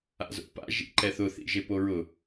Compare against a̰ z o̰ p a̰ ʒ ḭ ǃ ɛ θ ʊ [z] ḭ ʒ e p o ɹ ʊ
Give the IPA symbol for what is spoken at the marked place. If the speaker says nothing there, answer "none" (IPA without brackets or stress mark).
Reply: θ